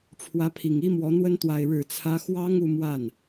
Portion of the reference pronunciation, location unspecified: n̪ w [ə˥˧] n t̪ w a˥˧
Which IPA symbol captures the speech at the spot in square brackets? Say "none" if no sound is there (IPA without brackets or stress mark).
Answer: ə˥